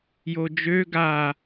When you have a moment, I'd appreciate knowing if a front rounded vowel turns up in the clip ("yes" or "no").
yes